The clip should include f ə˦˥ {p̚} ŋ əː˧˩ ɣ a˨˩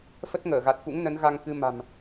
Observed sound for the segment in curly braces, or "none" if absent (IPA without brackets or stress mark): t̚